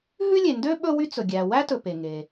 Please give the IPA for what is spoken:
ɦ ʉ˥ lʲ e˩ n d ø˥ ɓ ɵ˥ w y˥ t͡s ɵ˩ ɡʲ æ˩ w æ˥ t ɵ˩ p e˩ ŋ e˩

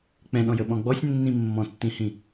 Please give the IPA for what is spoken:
k͡p ɛ̃ ɗ ɔ̃ j ə ɓ ɔ̃ ɡ͡b ɔ sʲ nː ĩ mː ɔ̃ tː ĩ h ĩ

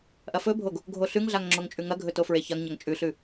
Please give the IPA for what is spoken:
ʔ ɐ f ɵ bʱ o ɡ | ɡʱ o ɬ ʉ ŋ ɮ a ŋ ŋ͡ǁ o ŋ t͡ʃʼ ʉ ŋ ɐ ɡʱ ɵ t o f ɹ e ç ɐ ŋ ɲ ɐ ŋ t͡ʃʼ ʉ ɬ ʉ

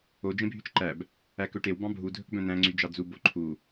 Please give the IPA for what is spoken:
o d͡ʒ ẽ bʱ y t͡ʃ ǃ æ b | æ k ɵ ʈ e w b ɑ̃ bʱ u dʱ ɵ k b œ̃ n̪ æ̃ ŋ͡ǀ y d͡ʒ ɑ d͡z u b o ǃʰ u

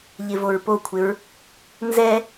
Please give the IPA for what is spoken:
ʎ ɪ v o ɹ p o kʷʰ ɪ ɹ | n z ɛ

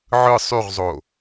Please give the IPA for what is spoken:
ʕ ɯ sˤ y ʁ zˤ o

